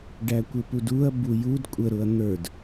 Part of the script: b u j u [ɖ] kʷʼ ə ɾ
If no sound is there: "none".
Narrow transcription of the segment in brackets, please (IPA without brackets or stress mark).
d